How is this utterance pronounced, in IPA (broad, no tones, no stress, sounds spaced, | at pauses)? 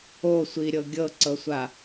o sʷ i ɾʲ ɤ ɡʲ ɤ ǀ ɤ sʷ a